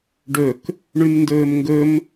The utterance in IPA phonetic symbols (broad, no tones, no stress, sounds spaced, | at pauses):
ɖ ɵ k | ɳ ʉ m n d ɵː m ŋ ɡ ɵ m